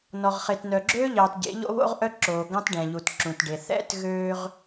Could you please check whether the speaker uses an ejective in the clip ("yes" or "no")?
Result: no